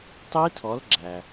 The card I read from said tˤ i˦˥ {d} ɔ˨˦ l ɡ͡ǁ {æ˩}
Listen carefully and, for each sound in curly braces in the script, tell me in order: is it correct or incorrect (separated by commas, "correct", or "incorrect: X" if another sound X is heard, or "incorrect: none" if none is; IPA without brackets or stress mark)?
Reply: incorrect: tʰ, correct